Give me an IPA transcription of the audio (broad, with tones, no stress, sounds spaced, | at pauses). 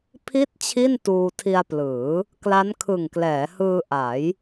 pʰ i˦˥ t̚ t͡ɕʰ i˥˩ n t uː˧ tʰ i˧ a̯ p l ɯː˩˦ | k l a˦˥ n kʰ ɯ˨˩ ŋ k l ɛː˩˦ h ɯː˧ ʔ a˩˦ j